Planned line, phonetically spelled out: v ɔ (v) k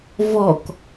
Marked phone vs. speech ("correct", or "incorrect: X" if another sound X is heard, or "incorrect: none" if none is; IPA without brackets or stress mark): incorrect: none